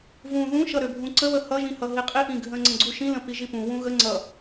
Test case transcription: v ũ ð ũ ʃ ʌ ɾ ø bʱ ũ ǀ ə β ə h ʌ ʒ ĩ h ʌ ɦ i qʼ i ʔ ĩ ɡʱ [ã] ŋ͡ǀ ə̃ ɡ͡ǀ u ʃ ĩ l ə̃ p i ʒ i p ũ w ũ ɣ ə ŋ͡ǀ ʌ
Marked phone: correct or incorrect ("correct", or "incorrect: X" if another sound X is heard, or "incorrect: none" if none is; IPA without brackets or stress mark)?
incorrect: ə̃